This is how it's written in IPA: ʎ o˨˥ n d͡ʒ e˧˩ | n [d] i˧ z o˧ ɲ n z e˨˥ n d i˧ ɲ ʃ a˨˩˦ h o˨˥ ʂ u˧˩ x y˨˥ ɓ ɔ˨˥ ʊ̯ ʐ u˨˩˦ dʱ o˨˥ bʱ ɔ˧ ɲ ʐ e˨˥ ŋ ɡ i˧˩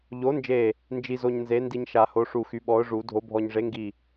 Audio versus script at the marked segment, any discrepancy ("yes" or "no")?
yes